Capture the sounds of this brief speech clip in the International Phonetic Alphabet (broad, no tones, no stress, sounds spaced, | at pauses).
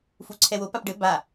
f u ǀʰ ɛ w o p a p ɖ ɘ b a